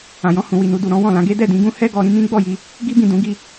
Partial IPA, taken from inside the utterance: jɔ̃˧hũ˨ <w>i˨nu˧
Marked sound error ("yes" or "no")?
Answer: no